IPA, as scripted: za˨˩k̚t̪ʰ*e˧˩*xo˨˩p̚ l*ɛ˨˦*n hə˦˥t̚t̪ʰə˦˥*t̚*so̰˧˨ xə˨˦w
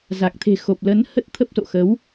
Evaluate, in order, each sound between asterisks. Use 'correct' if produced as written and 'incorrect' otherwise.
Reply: incorrect: e̤˨˩, incorrect: ə˨˦, incorrect: p̚

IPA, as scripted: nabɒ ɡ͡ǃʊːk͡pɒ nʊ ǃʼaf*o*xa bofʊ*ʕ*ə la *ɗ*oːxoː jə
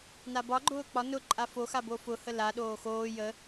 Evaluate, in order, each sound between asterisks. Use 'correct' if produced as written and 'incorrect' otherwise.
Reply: correct, incorrect: h, correct

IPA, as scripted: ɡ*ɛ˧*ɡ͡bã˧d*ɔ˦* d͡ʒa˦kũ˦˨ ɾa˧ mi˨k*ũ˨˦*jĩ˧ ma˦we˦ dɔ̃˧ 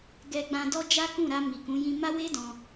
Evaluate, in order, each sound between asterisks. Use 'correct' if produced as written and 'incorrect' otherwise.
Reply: correct, correct, correct

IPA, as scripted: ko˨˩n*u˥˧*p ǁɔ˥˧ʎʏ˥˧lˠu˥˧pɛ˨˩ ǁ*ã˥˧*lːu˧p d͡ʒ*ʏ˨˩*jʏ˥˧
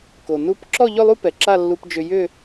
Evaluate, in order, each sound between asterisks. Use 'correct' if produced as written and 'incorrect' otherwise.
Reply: correct, incorrect: a˥˧, incorrect: ʏ˧

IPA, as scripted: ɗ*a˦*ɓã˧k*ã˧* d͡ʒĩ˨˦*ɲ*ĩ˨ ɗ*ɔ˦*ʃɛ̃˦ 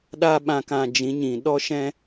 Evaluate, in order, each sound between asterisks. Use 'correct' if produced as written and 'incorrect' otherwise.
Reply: correct, correct, correct, correct

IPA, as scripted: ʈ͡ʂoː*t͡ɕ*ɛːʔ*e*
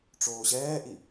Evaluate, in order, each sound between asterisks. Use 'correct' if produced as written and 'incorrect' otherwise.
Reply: incorrect: ɕ, incorrect: i

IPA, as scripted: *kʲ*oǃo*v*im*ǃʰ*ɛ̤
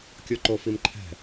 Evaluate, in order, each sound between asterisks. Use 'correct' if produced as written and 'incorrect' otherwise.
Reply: correct, incorrect: f, correct

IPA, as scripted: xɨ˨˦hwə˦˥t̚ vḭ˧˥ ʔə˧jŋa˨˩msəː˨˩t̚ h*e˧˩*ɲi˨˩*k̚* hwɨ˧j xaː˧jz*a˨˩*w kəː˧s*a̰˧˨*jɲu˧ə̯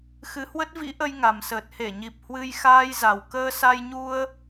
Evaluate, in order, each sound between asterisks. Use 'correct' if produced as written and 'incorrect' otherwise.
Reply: correct, incorrect: p̚, correct, incorrect: a˧

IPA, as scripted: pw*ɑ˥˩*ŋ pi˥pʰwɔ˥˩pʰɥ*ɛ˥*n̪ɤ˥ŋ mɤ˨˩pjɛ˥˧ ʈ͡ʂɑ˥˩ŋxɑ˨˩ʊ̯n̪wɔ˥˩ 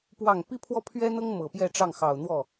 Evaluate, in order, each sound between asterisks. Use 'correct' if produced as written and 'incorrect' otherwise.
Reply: correct, correct

